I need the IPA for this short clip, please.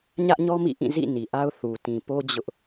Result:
ɲ ä˦ ʔ ɲ ɔ˦ m ḭ˦˨ ʔ ĩ˦˨ z ḭ˦˨ n i˨ ʔ a˦ ʊ̯ θ u˨ t ĩ˨ p o˦ d͡ʑ ʊ˦ ʔ

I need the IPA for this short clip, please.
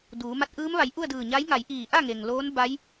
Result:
d uː˩˧ m a˧˥ t̚ ʔ ɯː˧˥ m ʋ a˩˧ j ʔ u˥˨ ə̯ d ɯː˧˩ ɲ a˧˥ j ŋ a˩˧ j ʔ iː˧˩ ʔ a˥˨ ŋ e˩ ŋ l oː˧˥ n b a˧˥ j

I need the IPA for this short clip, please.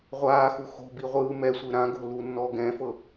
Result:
ʁʷ aː x u x o̤ b i ʁʷ ɯː m ɛ sʷ ɯ ɾ ã ɡ o̤ l u nː ɔ ɡ ɛ̃ f ɤ

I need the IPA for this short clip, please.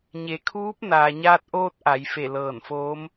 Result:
ɲ e˩˧ kʰ uː˧˥ p̚ n aː˩ ɲ aː˧ t̚ ʔ oː˧ t̚ ʔ a˩˧ j f e˧˩ l ɤː˧˩ n f oː˧˥ m

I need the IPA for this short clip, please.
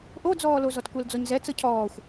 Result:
ʔ o d͡z ɔː l o z ɔ t kʷ ɛ l d͡z ɔ ɲ z ɛ t͡s ɤ cʰ ɔː xʷ

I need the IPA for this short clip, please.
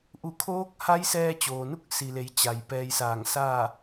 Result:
ʔ u˧˩ kʰ oː˧˥ k̚ h a˧˥ j s ɛː˧ t͡ɕ oː˩ n u˥˨ k̚ s i˩ l e˩˧ j t͡ɕ a˩ j p ɛː˧ j s aː˧˩ ŋ s a˥˨

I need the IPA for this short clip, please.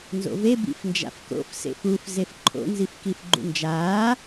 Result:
n z o̰ v e b ḭ f n d͡ʒ a̰ f k o̰ f s ḛ f u f z e f ǃʰ o̰ n z i f k i f ɡ͡ǃ ṵ n d͡ʒ aː

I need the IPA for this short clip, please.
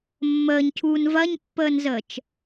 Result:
mː əː ɲ cʰ uː n v ɐ ɲ pː əː n z əː t͡ʃ

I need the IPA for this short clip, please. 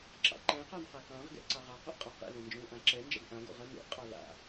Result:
ǁ ɑ̰ ǃ ɛ̃ q ɑ n q a k ɑ̃ ʁ ɡ ɛ̰ ǀ ɑ ʁ ɑ q o ʔ qʼ ɑ q ɛ̰ l ɛ̃ n d͡ʒ õ l ʔ ã ǁ ɛ n d͡ʒ a̰ ɡ ʔ ã ɡ o̰ ʁ ɐ n o̰ qʼ ɑ l a̰

